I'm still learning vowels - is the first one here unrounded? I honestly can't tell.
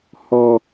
no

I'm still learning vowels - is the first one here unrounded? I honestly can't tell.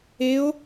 yes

